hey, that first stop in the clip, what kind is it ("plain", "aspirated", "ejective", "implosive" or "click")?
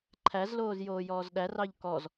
click